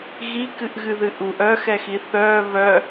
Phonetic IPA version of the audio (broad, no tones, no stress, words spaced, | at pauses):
ɣikɨʔɣɨðɨ ʔuʔ œxɛxi θœ βœ